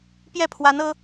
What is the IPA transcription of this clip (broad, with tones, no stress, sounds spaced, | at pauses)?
p j ɛ˥˩ pʰ w a˧˥ n ɤ˥